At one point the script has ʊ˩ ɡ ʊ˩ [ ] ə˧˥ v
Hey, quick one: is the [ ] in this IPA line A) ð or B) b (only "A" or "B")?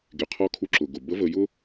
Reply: B